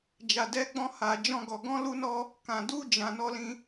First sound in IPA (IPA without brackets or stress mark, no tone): d͡ʒ